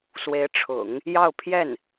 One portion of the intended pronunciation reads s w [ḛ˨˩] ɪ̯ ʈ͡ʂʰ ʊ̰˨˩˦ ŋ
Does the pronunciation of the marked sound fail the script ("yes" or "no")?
yes